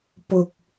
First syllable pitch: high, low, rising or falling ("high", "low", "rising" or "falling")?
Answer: low